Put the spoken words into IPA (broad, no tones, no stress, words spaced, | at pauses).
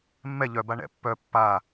mːɛ ʎœba ɳɛ̰pːœ pːa